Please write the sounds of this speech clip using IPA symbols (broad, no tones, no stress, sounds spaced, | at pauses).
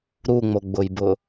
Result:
ɾ u ŋ͡m o ɡ͡b ʊ j b ʊ